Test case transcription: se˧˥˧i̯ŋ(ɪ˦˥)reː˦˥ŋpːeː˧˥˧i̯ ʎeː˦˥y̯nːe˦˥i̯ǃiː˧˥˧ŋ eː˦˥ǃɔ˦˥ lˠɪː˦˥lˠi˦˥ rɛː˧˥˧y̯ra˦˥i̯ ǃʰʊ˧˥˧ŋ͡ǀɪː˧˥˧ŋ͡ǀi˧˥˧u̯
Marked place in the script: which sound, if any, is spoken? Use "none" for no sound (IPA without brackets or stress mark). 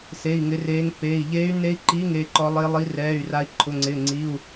ɪ˦˥